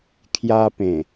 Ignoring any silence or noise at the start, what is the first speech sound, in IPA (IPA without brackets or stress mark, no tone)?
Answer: kʰ